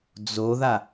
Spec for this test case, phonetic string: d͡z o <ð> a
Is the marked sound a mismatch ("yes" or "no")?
no